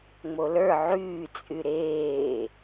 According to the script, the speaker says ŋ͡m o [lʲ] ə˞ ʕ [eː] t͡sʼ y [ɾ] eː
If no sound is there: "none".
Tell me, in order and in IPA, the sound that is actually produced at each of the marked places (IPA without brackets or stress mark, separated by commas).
l, yː, ɾ